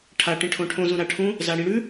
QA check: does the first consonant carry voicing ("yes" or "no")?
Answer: no